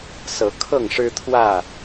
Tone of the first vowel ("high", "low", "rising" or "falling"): rising